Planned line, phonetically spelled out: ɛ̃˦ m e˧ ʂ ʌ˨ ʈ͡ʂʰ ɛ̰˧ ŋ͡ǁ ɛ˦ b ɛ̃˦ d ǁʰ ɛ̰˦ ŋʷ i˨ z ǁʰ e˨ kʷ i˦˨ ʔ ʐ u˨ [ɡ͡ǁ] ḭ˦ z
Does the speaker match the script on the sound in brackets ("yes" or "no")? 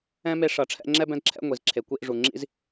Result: no